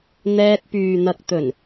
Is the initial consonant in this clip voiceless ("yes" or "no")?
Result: no